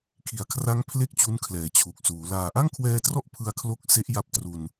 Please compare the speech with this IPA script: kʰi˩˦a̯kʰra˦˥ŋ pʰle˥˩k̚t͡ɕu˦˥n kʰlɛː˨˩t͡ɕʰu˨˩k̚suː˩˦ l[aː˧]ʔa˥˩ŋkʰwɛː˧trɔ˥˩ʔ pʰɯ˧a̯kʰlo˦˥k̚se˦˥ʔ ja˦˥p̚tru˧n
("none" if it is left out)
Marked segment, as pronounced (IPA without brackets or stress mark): aː˨˩